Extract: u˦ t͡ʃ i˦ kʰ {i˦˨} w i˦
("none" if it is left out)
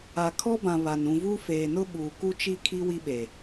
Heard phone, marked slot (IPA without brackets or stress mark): i˦